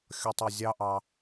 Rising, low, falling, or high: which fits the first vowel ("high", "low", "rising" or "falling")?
high